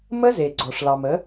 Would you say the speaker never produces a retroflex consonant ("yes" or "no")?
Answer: no